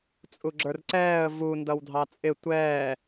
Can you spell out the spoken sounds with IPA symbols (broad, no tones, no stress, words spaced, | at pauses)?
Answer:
t͡sʼuɡ͡ǁə˞rǀɛːə̯ vu ndʌwdʱɑt͡sʼɪ tʷɛː